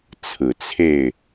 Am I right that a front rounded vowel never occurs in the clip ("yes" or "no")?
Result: yes